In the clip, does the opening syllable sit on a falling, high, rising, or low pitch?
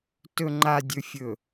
low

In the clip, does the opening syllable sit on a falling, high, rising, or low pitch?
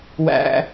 high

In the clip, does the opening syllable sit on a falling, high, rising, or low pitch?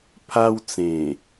high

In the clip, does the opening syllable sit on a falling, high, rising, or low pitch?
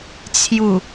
low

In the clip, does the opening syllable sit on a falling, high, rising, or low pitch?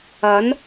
rising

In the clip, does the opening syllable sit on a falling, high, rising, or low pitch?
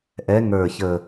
rising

